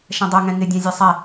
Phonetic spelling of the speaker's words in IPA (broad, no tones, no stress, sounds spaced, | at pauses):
ʃ ɛ̃ dˤ ɛ ŋ ɛ̃ ŋ ɪ dʲ æ̃ zʲ æ sˤ ɛ